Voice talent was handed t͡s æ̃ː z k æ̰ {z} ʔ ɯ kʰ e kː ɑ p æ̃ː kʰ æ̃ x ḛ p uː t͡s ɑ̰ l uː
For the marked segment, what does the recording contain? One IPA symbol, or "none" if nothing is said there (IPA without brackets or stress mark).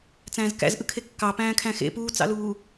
z